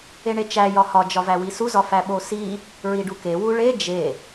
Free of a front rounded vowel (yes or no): yes